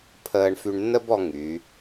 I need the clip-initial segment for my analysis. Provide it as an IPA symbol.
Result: pʰ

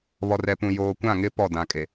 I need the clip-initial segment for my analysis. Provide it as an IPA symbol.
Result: β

